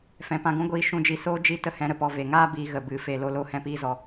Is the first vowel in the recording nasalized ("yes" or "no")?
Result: yes